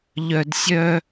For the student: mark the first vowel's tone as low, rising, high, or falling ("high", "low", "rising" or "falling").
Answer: low